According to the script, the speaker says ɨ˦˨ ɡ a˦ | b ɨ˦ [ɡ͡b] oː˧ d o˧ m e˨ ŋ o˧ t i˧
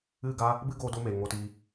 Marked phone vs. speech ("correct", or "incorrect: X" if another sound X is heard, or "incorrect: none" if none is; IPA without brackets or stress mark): incorrect: ɡ